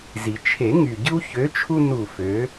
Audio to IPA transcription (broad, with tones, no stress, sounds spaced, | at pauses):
z i˩ t͡ʃʰ e˨˩˦ ŋ y˩ ɟ ɯ˦ w ç ø˨˥ t͡ʃʰ u˦ n u˦˨ f ø˨˥